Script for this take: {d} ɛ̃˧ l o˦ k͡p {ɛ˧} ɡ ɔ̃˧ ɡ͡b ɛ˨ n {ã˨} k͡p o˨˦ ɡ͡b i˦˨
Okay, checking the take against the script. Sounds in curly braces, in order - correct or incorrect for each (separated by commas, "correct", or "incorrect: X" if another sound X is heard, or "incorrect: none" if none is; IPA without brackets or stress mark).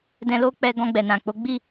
correct, correct, correct